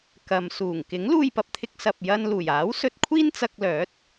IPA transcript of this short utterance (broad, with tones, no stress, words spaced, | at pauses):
kɐ˨msuː˨˩ŋ kɪ˨˥ŋluː˧jpɐ˨p̚t̪ʰɪ˧k̚ sɐ˨p̚jɐ˧n luː˨˩jaː˨˥wsɵ˧t̚ kʷʰiː˥nt͡sɐ˧k̚lœː˨˥t̚